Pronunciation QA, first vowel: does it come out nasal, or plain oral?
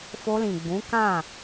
oral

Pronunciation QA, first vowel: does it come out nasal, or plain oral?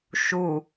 oral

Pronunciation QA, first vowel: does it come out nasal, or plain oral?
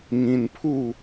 nasal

